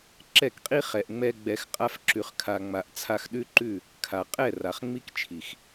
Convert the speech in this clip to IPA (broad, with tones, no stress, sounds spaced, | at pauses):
ǁ ɛ˦˨ k qʼ i˦ χ ɛ˨ ʔ ŋ͡m ɛ˧ ɡ͡b ɛ˨ x qʼ a˧ f ǁ ʉ˨ χ kʰ a˨ ŋ͡m a˨ ʔ t͡sʰ a˧ x ɗ ʉ˦ ǃ ʉ˦˨ | kʰ a˨ qʼ ɛ˦˨ r a˨ χ ŋ͡m i˦ k t͡ʃʰ i˨ x